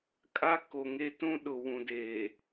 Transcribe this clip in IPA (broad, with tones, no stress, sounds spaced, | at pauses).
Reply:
kʼ a˦ k o˨ ŋ e˦ t ũ˦ ɗ ʊ˨ w ũ˨ d eː˨